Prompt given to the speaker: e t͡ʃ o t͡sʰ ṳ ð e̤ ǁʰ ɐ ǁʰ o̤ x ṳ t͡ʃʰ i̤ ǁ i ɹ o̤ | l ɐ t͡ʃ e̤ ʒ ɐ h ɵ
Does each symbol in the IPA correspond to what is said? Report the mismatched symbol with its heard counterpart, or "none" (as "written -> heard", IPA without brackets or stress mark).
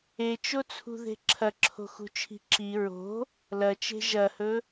none